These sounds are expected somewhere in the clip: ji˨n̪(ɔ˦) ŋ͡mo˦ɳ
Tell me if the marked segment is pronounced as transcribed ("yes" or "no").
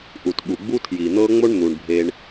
no